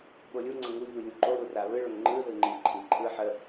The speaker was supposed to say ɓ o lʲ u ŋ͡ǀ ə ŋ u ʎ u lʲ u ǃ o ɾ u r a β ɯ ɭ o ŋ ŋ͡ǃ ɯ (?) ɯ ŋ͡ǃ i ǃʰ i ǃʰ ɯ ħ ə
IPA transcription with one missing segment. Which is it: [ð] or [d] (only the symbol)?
ð